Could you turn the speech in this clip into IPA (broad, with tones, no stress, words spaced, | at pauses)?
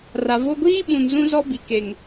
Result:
ra˨vo˦ ɡʷiː˦ ɓũ˨nzũ˦ zɔ˦bi˨ ke˨ŋ